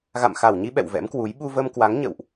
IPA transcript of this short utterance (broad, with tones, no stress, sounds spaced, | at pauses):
ɣ a̰˧˨ m x a˧˩ w ɲ i˧ ɓ ɛ̰˧˨ w v ɛ̰˧˥ m k w u˨˦ j ɓ u˧ v ə˧ m k w a˨˦ ŋ ɲ ə̰˧˨ w ʔ